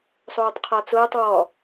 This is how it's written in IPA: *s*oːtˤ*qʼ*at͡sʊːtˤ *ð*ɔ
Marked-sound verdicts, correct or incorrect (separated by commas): incorrect, incorrect, incorrect